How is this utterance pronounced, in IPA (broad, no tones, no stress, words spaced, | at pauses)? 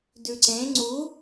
dʉǀẽ ŋ͡ǀu